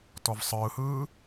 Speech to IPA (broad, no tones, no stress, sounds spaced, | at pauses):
t ɔ v sˤ ɯː h ɯː